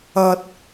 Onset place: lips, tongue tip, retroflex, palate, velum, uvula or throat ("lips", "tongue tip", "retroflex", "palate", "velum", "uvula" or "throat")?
tongue tip